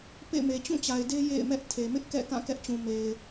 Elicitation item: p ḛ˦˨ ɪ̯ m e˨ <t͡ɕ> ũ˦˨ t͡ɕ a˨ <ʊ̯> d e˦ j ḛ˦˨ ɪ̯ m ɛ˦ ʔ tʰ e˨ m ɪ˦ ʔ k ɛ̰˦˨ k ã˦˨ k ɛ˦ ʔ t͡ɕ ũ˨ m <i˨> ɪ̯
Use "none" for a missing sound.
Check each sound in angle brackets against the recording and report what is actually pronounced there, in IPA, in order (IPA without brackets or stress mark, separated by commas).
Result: t͡ɕ, ɪ̯, e˨